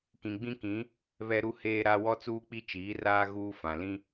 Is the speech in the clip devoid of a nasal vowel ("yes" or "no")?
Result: no